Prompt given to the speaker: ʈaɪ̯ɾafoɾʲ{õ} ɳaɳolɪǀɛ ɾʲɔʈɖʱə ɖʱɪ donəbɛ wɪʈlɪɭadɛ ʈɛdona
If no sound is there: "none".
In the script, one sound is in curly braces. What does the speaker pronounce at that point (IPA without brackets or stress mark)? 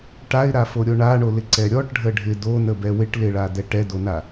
o